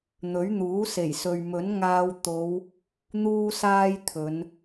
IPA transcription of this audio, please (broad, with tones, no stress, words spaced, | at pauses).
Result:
n̪ɵ˨˥ɥn̪uː˨˥ se˨˩jsɵ˨ɥ mɵ˨˥nŋaː˧w t̪o˨˧w | n̪uː˥saː˥jt̪ʰɵ˨˧n